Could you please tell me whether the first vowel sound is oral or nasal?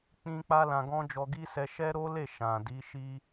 nasal